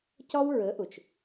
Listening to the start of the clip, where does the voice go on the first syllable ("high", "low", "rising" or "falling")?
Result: high